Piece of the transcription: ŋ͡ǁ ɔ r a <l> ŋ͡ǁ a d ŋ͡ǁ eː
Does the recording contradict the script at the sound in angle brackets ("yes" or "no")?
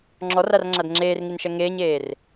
yes